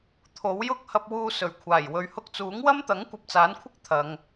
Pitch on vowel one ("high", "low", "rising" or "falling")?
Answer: rising